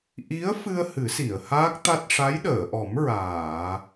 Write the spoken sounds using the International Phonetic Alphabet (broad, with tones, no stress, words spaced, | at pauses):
ʔi˧˥ə̯fɨ˧ə̯ hɨ˨˩˦si˨˩˨ə̯haː˦˥k̚t̪a˦˥t̚ ʂa˧˥jɗəː˨˩˨ʔɔ˨˩˦m ɹaː˨˩˨